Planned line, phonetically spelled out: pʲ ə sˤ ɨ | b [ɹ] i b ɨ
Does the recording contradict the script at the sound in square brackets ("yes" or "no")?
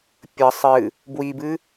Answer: yes